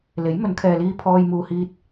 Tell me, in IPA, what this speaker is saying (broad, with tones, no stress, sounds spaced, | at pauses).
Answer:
l e˨˥ j m ɵ˨˧ n kʰ ɛː˨ l iː˧ pʰ ɔː˧ j m uː˨ h iː˧ t̚